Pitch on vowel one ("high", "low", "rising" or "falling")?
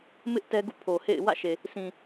high